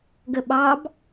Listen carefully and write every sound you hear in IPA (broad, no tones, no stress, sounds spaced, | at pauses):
ɡ ə ɓ ɑ b